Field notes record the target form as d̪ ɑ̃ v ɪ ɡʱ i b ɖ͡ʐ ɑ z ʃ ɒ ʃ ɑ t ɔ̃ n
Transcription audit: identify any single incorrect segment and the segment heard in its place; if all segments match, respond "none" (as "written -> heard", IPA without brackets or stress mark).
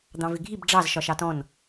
none